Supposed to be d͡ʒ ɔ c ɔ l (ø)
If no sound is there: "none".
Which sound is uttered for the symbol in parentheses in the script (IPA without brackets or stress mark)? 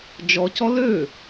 ø